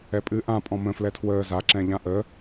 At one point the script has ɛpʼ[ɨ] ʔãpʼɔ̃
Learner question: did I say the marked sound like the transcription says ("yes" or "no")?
yes